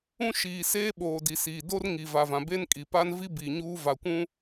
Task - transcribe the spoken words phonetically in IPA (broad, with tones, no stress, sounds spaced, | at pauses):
ũ˦ ʃ iː˨ s eː˦ ɓ oː˨ d i˨ s iː˨ d o˦ r ŋ i˨ v a˨ v ã˨ b e˦ n kʼ i˨ p aː˦ n v i˦ b iː˨ ɲ uː˦ v a˨ kʷ ũ˦